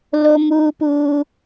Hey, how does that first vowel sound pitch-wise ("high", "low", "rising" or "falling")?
high